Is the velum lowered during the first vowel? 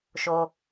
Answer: no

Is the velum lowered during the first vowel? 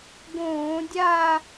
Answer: yes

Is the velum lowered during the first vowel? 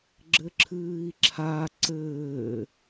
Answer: no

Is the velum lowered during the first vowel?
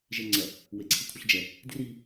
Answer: no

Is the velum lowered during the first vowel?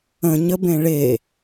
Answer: yes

